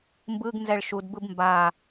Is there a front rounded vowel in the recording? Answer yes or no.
no